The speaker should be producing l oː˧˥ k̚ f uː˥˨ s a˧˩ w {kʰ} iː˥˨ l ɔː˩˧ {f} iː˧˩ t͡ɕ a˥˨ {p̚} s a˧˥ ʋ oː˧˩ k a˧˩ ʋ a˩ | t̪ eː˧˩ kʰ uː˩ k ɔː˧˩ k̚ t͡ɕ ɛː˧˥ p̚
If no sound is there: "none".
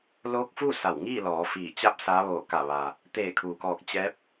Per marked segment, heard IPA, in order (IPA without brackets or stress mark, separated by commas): ŋ, f, p̚